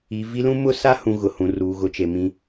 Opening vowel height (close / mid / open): close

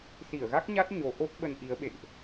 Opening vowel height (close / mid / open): close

